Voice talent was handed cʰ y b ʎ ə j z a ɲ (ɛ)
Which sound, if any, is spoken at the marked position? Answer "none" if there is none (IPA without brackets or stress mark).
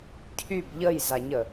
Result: ə